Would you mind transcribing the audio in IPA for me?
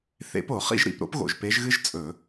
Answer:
θ ḛ˧˥ p o˧˩˧ χ ḭ˥ ʒ ɾ ḭ˧˩˧ p ɾ o̰˥ p ɣ o̰˨˩ ʒ p e˧˥ ʒ ɣ ɨ˥ ʒ t͡sʼ ɵ˧˩˧

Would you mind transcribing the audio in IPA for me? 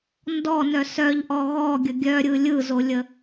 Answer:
n d ɔ n œ s œ ʎ ʔ ɔ ɣ ɔ ɡʲ ə ɡʲ œ ɾʲ ɯ lʲ ɯ z o lʲ ə

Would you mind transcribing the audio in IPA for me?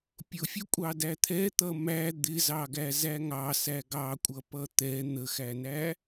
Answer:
pʲ ʊ fʲ ʊ kʷʼ ɑ d æ t̪ʰ ɛ t̪ ʌ m æ d̪ ɪ z ɑ ɡ æ z æ ŋ ɑ s æ ɡ ɑ kʷʼ ʌ p ʌ t̪ ɛ n̪ ə x æ n æ

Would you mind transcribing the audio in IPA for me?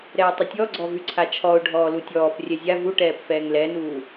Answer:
ɾ ɛː tˤ ə tʲ ɔ ɡ͡ǀ ɔ v y ǀʰ a t͡ʃʰ ɔ ʊ̯ ɖʱ ɔː l u tʲ ɔː p rʲ ɛ zʲ a v u ʈ ɛː p f ɛː ŋ l ɛ n uː

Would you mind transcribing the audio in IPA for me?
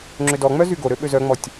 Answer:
ŋ͡ǁ ʏ d ɔ ŋ͡m œ z y ɡ o ɾ ø ɓ ø z œ ŋ͡m ɔ tʲ

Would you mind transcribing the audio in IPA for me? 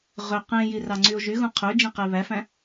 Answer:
ʁ ø q ẽ j i r ɑ ŋ͡ǀ y o̯ ʒ y ɣ ũ qʰ ø d͡ʒ ẽ q e β æ f æ̃

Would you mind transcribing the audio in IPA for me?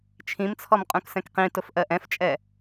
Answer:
t͡ʃʰ ĩ m t͡sʰ ɔ m qʼ ũ k s ɛ̃ k q ĩ t ʊ f ʔ ɜ ʔ ɛ̃ f t͡ʃʼ ɛ

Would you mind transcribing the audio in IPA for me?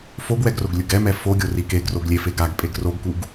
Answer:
f o ɡ w ɛ ɡ r o ɡ lʲ ɯ ɡ ɛ m ɛ f o ɡʲ o r i k e ɡ r o ɡ lʲ e f e ɡ a ɡ pʼ e ɡ r o ɡ k u ɡ

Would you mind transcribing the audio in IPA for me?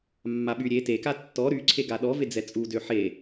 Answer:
mː a ɓ y ɾʲ e t e k a tː ɔ ɾ y ǀʰ e ɡ a ɗ ɔ v e d͡z ɛ t͡sʼ u d ø ħ e

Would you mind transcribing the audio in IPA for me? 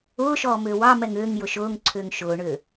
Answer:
ʊː ʃ ɔː m ʏː w ɑ m ɛ ŋ ʏː ŋ j ʊ ʃ ʊː ŋ ǀʰ ʏː ŋ ʃ ʊː ɳ ʏː

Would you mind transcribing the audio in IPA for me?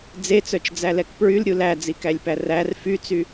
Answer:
d͡z e t͡s œ t͡ʃ d͡z æ l ɛ k p ɹ y l ɾʲ u l æ d͡z i k æ lʲ p æ r æ r f y t͡s y

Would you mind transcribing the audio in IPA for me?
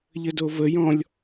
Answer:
ʎ ə d o v ə j ɔ̃ lʲ

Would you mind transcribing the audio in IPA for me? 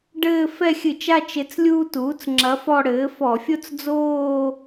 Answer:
ɖ ɘː˥˧ f ɛ˥˧ xʲ ɨ˧˩˧ t͡ʃ a˥˧ t͡ʃ e˧˥ t͡s lʲ uː˥ t uː˩˥ t͡s ŋ͡ǁ ɐ˧˥ f ɔ˥˧ ɽ ɘː˩˥ f ɔ˧˩˧ fʲ o˥ t͡s d͡z oː˥˧

